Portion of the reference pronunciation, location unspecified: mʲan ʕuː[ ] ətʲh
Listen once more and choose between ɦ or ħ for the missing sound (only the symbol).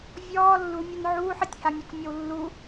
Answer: ħ